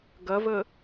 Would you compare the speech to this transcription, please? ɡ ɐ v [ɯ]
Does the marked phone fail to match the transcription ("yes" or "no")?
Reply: yes